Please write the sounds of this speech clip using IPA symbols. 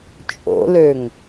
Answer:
t͡ʃʼo̰løŋ

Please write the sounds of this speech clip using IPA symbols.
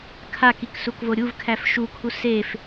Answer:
kʰakik sukvoɾʲuvkʰæf ʃukʰu sef

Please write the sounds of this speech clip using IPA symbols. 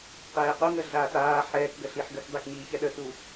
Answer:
qɛːquŋə ɮaːtaː ħɛːkɡəɬiħ ɡəkdˤek ɲiːçɛɗətu

